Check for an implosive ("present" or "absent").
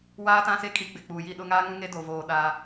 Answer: present